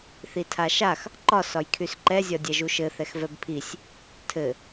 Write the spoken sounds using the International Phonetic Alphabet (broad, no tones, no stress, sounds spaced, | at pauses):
θ i tʰ a ʃ a x | ǃ ɒ s ɒ j kʰ y s ǃ ɛ zʲ ɒ dʲ ɛ ʒ u ʃ ɘ θ ɛ x v ɛ b pʰ i sʲ | tʰ ɘ